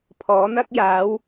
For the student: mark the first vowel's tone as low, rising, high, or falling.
rising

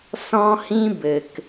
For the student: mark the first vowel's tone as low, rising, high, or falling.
high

